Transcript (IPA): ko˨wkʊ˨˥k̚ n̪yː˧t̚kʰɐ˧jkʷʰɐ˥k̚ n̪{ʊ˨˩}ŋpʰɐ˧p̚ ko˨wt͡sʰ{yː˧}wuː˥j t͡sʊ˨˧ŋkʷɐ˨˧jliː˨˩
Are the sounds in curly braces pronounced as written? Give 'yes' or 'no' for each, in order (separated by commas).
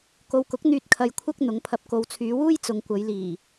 no, no